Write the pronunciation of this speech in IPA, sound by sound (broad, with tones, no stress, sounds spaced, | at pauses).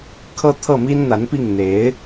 kʰ ɤ˥˧ t̪ʰ ɤ˥˩ m i˥ n n̪ a˧˥ n p i˥˩ ŋ n̪ e˧˥ ɪ̯